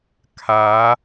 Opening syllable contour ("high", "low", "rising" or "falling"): rising